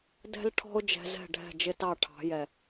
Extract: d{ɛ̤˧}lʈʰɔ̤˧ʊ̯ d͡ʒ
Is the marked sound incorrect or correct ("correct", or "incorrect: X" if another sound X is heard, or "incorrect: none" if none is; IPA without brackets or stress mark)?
correct